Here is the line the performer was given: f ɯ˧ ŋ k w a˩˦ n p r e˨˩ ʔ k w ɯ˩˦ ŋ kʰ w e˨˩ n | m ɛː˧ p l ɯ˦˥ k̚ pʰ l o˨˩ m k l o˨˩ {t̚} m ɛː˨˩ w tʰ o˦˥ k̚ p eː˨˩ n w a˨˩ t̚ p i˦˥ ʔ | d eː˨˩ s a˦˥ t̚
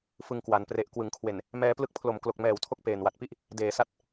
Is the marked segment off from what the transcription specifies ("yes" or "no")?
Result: yes